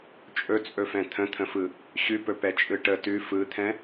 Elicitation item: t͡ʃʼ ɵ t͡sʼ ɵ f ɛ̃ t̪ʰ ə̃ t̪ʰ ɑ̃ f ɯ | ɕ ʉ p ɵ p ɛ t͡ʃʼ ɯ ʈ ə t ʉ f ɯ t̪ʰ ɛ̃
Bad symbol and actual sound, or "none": ɑ̃ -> ə̃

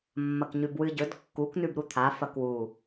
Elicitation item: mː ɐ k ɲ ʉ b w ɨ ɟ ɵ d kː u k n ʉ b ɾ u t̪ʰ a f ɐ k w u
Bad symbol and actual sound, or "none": none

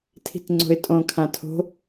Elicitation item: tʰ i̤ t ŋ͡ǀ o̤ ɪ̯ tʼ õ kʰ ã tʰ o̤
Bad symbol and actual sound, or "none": none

